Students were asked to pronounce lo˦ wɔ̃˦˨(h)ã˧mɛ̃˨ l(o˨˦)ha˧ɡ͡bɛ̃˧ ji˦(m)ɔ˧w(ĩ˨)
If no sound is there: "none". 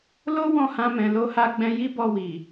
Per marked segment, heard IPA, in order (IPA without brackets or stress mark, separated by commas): h, o˧, b, i˨